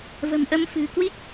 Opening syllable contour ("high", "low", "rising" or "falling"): low